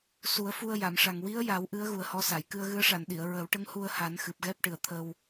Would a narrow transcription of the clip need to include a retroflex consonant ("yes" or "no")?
yes